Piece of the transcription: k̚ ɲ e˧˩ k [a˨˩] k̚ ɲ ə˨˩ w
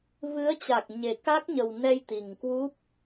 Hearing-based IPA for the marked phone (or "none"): a˦˥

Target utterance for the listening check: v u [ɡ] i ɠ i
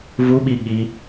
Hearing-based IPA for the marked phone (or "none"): ɓ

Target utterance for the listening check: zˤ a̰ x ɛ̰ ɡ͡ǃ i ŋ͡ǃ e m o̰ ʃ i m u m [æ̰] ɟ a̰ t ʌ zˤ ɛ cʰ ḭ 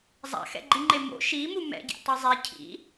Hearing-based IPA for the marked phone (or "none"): ɛ̰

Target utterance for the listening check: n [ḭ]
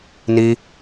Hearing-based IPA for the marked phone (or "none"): i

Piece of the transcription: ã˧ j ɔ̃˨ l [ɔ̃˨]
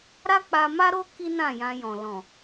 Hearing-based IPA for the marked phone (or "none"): ɔ̃˨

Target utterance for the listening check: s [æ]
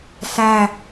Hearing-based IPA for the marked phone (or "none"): æ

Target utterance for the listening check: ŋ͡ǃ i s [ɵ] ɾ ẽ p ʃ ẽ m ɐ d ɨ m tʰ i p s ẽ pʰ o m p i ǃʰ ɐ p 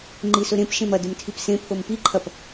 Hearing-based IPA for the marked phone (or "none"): ɵ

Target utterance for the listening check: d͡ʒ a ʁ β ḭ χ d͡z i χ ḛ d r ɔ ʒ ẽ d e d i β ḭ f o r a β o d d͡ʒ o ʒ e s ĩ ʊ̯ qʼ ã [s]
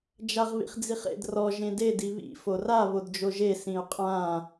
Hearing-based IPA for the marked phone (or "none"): none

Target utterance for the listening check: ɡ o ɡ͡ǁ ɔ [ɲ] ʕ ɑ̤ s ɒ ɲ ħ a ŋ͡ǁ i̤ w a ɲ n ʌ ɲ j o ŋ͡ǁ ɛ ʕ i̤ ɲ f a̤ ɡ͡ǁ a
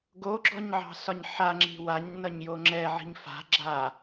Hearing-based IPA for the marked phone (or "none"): ɲ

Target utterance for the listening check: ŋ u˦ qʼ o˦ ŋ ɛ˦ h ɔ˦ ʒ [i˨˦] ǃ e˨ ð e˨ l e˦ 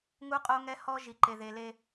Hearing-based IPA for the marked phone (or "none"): i˨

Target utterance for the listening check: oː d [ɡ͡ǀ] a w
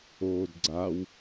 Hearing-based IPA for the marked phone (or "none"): ɡ͡ǀ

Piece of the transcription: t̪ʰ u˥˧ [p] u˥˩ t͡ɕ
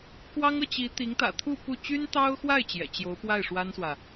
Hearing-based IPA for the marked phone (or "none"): p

